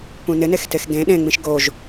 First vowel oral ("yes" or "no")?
no